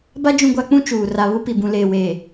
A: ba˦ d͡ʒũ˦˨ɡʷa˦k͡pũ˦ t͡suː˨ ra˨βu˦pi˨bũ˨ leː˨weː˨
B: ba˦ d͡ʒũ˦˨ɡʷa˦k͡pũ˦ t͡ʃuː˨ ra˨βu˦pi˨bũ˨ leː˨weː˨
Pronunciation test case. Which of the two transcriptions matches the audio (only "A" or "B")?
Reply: B